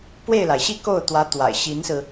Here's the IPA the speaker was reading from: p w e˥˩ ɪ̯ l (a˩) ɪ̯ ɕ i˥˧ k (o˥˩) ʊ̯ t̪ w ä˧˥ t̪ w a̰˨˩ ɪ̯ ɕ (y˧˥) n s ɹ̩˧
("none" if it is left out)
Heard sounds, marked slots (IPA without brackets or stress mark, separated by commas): a˩, o˥˩, i˧˥